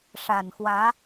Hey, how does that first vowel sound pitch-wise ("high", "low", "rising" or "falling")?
low